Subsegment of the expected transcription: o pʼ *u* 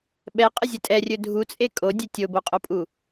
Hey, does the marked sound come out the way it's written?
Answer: yes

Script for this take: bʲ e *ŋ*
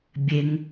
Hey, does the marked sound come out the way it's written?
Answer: yes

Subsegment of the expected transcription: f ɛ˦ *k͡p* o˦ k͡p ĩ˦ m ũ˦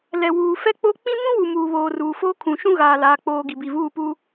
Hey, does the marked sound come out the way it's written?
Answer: yes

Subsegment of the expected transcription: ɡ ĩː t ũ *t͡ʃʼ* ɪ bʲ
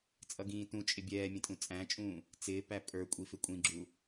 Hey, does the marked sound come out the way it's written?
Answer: yes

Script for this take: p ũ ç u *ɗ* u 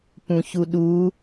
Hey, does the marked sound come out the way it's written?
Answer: yes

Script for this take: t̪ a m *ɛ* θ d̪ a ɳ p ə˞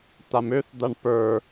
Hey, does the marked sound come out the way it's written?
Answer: no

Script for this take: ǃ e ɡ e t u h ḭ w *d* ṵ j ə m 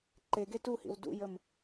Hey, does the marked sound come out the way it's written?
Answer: yes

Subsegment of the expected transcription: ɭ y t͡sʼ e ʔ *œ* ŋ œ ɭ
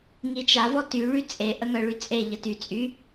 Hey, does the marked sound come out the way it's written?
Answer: no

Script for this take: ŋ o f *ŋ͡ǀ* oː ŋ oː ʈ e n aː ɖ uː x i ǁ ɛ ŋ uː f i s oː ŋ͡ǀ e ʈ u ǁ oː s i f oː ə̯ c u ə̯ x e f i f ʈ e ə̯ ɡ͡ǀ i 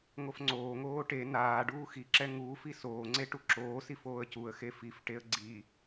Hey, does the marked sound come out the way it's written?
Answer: yes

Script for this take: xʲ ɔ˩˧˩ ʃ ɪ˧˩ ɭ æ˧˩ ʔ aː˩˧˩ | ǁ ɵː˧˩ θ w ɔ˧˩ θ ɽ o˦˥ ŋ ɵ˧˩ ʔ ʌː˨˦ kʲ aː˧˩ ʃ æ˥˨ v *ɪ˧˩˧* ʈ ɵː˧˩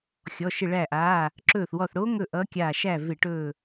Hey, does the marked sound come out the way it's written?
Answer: yes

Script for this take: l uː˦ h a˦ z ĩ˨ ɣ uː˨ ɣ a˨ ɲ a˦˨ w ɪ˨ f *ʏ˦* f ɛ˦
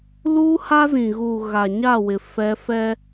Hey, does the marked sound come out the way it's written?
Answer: no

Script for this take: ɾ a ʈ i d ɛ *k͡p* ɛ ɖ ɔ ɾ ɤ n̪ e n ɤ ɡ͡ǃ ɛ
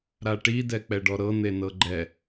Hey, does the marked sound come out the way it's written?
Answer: yes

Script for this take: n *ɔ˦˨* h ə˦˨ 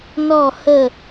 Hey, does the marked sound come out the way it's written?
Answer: yes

